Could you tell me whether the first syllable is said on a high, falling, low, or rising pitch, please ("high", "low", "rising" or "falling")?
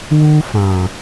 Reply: high